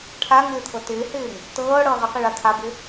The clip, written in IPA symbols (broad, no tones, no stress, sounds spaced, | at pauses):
ʈʰ a ŋ ɪː t̪ʰ ɤ t ɪː h ɪː ŋ | t ɤː ɽ ɤ ʁ ɪ q i ɭ a t̪ʰ a b ɪ